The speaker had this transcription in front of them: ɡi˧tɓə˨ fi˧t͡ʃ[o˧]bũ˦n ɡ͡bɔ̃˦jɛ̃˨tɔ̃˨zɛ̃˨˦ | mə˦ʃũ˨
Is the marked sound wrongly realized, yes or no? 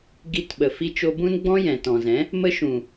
no